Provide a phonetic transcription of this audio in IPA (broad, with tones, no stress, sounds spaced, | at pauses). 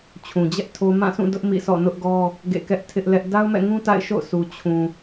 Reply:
t͡ɕʰ ũ˨ d͡ʑ ɛ˦ ʔ tʰ o˦ m ã˦˨ s ũ˦˨ d ʊ˦ ʔ m ḭ˦˨ s ɔ̰˦˨ n ʊ˦ ʔ ɡ ɔ˦ | ɡ ḛ˦˨ k ɛ˦ ʔ tʰ ɪ˦ ʔ l ɛ˦ ʔ d a˦ ʊ̯ m ɛ̰˦˨ ŋ ũ˦ t a̰˦˨ ɪ̯ ʃ o̰˦˨ ʊ̯ s u˨ t͡ɕʰ ũ˨